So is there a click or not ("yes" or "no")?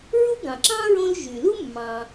yes